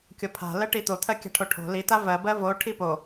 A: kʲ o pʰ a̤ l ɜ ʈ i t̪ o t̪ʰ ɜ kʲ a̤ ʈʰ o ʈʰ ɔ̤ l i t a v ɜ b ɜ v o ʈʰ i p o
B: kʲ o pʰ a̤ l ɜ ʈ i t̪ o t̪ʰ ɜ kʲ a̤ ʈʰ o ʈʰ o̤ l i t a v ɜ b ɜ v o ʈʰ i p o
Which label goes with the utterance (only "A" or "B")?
B